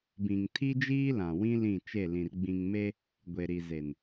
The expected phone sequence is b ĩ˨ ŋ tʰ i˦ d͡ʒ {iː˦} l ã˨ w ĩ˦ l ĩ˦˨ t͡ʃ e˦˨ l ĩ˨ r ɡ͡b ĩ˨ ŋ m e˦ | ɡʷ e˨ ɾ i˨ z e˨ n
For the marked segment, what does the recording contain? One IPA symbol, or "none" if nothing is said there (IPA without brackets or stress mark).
iː˦